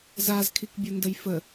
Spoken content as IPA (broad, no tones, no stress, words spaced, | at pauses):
zazkʰikbʲondəj fə